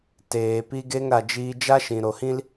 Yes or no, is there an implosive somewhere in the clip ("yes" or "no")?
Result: no